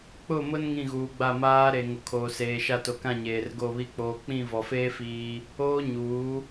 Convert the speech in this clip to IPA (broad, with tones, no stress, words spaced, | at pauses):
k͡pʊ˦˨mʊ˦n ŋĩ˦˨ɣuː˨ɡ͡ba˦˨ maː˦ɾe˨ ŋo˨kʰoː˨seː˨ʃa˦˨ to˨kã˦˨ ɲeː˨rɡo˦˨βi˦ k͡poː˨k͡pĩ˦˨vɔ˨feː˦ fiː˦ | oː˦ɲuː˨˦